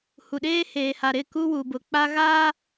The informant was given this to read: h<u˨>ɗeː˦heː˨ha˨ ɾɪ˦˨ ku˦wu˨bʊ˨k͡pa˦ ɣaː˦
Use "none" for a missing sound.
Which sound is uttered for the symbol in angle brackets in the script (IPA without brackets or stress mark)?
u˨